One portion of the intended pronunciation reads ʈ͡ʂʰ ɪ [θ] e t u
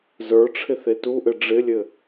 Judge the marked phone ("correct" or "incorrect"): correct